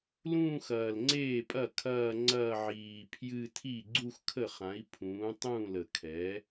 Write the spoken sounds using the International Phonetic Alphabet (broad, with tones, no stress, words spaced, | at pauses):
lũː˥˧xɐː˨˩lŋ͡ǀeː˥˩pʼɐ˥˩ kʰɐː˥˧ŋ͡ǀɐː˥˧ ʕiː˨˩pʰjɨ˥˧ tʰi˥˩ɡ͡ǀu˥˧xkʰə˥˩χã˩˥i̯ pʰũː˩˥tˤũː˥˩lə˨˩kʰɛ˩˥